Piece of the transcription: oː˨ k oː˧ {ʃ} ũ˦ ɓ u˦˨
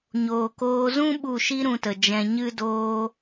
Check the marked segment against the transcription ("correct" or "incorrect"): incorrect